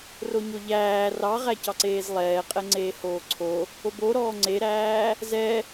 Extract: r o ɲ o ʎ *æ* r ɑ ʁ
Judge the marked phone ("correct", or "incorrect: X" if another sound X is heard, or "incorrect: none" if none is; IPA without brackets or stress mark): incorrect: æː